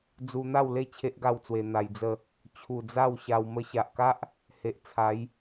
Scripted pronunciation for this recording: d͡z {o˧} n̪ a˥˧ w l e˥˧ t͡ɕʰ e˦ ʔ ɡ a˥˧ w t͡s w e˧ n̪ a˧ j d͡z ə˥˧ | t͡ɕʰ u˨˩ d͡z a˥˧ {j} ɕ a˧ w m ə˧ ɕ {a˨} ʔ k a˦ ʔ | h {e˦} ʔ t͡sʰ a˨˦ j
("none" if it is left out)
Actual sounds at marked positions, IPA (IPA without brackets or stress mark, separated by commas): u˧, w, a˨, e˨